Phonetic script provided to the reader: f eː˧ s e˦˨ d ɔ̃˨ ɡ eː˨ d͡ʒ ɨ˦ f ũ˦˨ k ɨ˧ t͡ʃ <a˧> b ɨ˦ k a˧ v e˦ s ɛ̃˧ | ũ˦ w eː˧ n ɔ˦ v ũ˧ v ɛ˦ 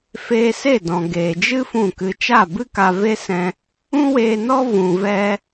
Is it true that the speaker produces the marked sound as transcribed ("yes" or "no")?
no